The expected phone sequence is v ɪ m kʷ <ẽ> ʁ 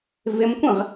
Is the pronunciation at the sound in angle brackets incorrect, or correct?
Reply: correct